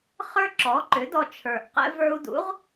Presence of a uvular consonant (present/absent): present